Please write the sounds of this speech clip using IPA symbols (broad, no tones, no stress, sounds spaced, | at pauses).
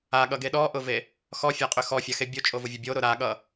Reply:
a ɠ ʌ ɡ e ɗ ɔ ʔ ʊ v e | x ɔ fʲ a qʼ ʏ x ɔ fʲ a x e bʲ o t͡ʃʼ o v o vʲ ʊ bʲ o ɾ ʊ ɾ a ɠ ʌ